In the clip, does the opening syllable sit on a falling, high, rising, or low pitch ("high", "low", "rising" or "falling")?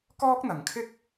high